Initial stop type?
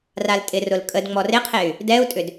ejective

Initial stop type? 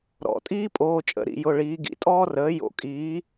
ejective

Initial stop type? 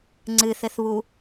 click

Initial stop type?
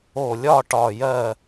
plain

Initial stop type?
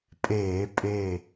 ejective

